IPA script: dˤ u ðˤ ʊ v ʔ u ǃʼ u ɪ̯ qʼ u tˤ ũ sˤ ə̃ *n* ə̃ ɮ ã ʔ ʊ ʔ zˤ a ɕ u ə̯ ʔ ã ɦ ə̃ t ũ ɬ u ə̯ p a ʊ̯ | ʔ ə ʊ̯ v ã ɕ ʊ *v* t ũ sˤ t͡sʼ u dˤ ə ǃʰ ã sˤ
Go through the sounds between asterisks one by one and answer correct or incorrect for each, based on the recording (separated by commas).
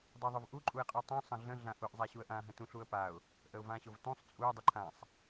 incorrect, correct